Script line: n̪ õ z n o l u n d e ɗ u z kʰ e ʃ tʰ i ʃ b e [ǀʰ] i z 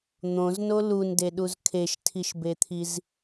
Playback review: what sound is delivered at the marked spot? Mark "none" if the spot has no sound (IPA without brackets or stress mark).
t̪ʰ